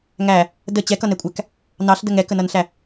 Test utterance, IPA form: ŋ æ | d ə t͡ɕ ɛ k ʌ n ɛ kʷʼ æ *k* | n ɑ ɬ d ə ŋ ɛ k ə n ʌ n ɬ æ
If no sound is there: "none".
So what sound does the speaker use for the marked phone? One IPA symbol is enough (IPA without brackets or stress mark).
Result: k